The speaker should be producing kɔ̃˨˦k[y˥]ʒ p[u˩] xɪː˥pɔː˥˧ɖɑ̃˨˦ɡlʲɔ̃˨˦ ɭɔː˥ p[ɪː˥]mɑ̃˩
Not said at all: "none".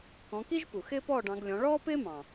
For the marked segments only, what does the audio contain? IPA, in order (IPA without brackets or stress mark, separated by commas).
i˥, u˩, ɪː˥